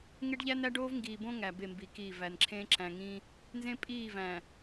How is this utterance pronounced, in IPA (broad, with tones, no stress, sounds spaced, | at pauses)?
ŋ e˦ ɖ ʎ æ˦ n æ˦ ɖ oː˦ v ŋ ɡ iː˨ b õ˦ ŋ æ˨ b e˦˨ m b i˨ k i˦˨ v æ˨ n ǁʰ ẽ˦ ǁ æ̃˨ ŋ ĩ˦ | n z ẽ˦ pʼ iː˦˨ v æ̃˨